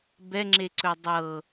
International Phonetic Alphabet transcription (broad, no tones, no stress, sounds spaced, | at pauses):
b ɛ ŋ͡ǁ e ǀ ɵ dˤ ɤ